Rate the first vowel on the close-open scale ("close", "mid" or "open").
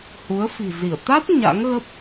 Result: close